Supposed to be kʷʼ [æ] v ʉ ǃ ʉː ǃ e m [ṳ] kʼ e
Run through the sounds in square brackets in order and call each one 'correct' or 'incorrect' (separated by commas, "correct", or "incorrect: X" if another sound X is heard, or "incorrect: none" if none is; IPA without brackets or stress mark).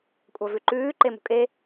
incorrect: a, correct